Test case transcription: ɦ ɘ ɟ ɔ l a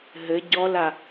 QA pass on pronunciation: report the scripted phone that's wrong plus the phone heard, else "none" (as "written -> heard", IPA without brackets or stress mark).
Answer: none